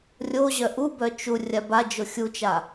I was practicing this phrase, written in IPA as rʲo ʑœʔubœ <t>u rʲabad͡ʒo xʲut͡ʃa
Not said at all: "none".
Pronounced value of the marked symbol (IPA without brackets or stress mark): t͡ʃ